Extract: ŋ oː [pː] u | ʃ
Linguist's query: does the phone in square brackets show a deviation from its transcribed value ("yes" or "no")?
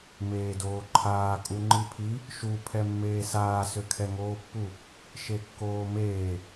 no